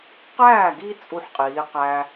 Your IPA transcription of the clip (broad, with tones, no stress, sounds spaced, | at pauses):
q æː˥˩ ɡ i˦ t͡sʼ u˦ ħ qʼ iː˨˦ q æ˦